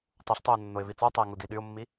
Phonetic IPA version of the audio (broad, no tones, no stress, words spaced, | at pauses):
tˤuɬtˤøʊ̯ nːoɪ̯vit͡sotˤɛɪ̯ ŋudiɗyʊ̯mːi